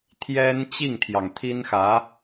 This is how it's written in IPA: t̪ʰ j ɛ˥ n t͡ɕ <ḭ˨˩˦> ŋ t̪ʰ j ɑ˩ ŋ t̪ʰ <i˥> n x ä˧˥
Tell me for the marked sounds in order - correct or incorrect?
incorrect, correct

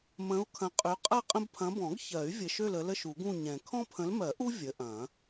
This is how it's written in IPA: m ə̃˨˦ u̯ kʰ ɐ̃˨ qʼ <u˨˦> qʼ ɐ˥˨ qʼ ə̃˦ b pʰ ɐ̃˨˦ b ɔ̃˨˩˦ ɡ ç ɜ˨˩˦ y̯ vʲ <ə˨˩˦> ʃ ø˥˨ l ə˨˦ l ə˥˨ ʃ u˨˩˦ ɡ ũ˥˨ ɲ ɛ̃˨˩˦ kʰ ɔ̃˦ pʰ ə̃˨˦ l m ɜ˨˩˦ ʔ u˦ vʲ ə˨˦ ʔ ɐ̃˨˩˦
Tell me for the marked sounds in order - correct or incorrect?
incorrect, incorrect

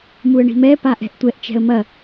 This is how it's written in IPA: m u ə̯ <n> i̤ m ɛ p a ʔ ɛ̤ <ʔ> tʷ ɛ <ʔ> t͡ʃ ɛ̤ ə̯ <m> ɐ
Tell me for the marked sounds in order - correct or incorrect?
incorrect, correct, correct, correct

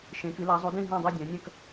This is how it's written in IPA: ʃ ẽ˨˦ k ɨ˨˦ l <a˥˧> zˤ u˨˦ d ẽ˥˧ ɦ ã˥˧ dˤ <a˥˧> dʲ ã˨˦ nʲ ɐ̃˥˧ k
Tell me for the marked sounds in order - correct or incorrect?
incorrect, correct

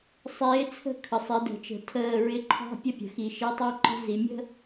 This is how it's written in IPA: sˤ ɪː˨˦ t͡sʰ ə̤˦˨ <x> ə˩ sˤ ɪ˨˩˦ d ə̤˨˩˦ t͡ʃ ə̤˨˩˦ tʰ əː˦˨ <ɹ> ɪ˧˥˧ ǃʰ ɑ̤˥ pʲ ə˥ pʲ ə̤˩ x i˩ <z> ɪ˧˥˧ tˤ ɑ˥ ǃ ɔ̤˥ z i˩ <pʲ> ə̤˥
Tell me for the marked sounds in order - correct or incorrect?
incorrect, correct, incorrect, incorrect

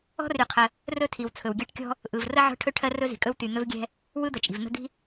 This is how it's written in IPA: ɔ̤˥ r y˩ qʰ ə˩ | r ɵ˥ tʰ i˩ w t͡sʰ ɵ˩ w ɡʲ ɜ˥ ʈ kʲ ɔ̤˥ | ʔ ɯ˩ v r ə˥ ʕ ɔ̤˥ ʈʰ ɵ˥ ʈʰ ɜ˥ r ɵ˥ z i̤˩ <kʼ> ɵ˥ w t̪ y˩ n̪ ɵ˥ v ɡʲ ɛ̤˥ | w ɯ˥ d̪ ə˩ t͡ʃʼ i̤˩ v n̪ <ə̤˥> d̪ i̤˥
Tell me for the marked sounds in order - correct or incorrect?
correct, correct

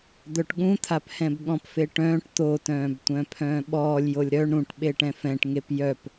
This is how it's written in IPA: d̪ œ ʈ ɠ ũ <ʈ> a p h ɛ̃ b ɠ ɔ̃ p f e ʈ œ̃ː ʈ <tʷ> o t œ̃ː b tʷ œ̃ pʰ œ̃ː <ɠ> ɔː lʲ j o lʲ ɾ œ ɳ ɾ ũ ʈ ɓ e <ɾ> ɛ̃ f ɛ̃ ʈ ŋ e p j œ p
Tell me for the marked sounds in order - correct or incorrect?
incorrect, incorrect, incorrect, incorrect

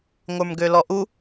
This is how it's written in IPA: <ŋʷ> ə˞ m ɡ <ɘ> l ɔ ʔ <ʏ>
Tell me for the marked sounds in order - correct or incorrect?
correct, incorrect, incorrect

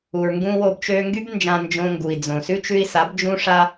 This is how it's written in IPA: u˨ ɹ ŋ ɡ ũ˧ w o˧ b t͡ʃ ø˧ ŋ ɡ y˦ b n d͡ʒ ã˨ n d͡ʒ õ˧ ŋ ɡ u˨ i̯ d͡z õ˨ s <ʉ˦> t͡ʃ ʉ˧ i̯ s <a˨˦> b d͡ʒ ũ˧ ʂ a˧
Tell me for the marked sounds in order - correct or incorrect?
correct, correct

